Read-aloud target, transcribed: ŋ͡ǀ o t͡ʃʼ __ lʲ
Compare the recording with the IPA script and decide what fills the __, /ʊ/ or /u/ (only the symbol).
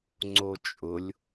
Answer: ʊ